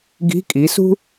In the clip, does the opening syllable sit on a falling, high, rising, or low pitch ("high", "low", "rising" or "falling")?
rising